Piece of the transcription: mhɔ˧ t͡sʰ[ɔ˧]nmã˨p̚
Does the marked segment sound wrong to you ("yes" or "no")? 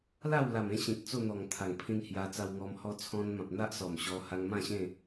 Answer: yes